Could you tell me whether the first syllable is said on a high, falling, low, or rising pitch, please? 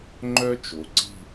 high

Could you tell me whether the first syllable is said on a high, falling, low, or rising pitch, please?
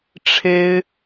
high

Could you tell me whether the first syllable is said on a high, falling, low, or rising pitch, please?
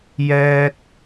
high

